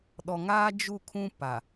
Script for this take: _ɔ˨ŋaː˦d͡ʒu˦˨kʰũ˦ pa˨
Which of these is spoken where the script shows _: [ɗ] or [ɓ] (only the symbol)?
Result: ɗ